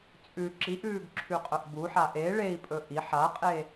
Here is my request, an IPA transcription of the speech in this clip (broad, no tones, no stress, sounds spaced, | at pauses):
t͡sʼ ʉ ǁ i ʔ ʉː ɡ ǁʰ ʉ qʼ œ ʔ b u ħ a ʔ e ɭ e i̯ pʼ ɵ ʔ i ħ a qʼ e